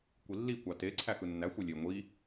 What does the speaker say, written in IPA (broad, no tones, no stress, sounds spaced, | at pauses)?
kʷ i lː i kʷ ɑ t e ǀʰ æ x ɯ nː æ xʷ e lʲ e ŋʷ i